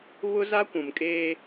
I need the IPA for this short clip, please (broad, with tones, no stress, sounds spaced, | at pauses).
β ʊ˦ z a˦ kʷ ũ˨ m kʼ eː˦